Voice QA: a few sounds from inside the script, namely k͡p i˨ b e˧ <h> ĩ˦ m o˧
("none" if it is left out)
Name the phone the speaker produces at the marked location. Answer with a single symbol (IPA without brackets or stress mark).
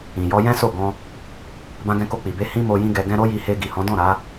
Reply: h